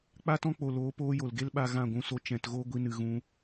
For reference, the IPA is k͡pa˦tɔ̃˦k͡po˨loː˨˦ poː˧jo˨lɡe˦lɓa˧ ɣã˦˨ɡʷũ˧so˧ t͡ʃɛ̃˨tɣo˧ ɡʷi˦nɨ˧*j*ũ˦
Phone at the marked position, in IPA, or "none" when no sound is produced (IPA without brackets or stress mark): ɣ